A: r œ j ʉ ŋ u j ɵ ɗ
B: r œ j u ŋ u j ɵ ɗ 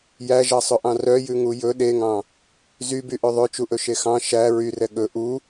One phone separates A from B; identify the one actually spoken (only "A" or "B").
A